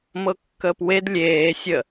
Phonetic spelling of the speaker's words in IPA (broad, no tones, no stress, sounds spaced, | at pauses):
m ɤ kː əː p w e d lʲ eː sʲ ə